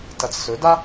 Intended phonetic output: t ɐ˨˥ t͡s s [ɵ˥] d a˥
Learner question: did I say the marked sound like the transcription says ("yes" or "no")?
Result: no